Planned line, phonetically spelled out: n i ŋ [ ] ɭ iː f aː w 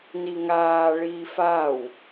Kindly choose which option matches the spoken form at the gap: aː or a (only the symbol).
aː